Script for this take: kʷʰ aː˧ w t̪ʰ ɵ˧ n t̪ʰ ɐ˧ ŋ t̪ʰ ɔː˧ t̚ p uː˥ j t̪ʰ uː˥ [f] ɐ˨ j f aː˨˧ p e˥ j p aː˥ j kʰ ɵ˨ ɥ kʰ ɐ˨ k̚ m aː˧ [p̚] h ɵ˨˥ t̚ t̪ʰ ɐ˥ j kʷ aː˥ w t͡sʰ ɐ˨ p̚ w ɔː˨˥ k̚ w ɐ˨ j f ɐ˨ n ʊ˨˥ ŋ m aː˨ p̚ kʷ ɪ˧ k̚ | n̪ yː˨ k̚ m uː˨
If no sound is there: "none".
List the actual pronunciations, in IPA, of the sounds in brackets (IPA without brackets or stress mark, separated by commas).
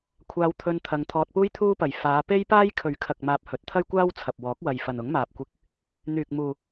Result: p, p̚